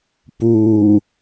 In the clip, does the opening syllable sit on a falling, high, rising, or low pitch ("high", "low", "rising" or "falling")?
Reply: low